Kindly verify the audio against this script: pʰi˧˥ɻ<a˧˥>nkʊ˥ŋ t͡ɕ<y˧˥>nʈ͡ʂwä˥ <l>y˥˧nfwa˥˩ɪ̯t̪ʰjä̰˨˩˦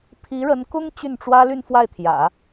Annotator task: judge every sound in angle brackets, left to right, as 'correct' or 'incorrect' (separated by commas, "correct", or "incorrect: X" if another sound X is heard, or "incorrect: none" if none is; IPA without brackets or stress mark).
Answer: incorrect: ə˧˥, incorrect: y˥˩, correct